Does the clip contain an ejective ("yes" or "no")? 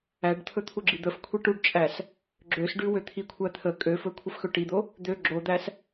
yes